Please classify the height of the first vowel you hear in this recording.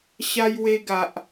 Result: low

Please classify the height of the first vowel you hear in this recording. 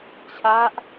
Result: low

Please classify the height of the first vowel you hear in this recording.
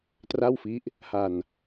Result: low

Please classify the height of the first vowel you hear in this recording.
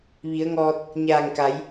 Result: high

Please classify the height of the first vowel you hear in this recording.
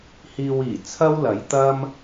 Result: high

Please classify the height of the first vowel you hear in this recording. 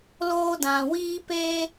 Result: mid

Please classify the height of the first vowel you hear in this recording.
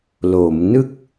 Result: mid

